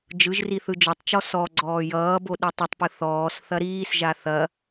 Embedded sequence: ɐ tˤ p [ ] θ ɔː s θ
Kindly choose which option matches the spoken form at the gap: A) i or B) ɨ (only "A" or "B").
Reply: B